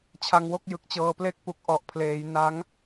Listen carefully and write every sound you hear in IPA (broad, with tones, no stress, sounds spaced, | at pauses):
t͡ɕʰ a˧ ŋ w o˥˩ k̚ j ɯ˨˩ k̚ t͡ɕ ɤː˧ p l e˦˥ k̚ p u˨˩ k̚ ʔ ɔ˨˩ ʔ pʰ l eː˩˦ j n a˦˥ ŋ